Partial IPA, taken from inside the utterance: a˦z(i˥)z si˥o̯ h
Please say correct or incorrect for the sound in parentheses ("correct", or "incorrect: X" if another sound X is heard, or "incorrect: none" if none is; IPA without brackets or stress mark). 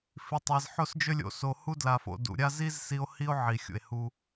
correct